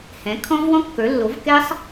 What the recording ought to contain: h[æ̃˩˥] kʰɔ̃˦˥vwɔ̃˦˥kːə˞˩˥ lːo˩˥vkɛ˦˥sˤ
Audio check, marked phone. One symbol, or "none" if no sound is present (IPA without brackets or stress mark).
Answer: ɛ̃˩˥